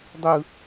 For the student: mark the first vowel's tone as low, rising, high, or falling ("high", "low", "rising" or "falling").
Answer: high